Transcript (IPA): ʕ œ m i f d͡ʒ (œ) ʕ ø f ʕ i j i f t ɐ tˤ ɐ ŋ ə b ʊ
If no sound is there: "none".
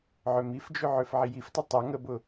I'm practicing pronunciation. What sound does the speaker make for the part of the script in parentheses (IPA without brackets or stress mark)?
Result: ø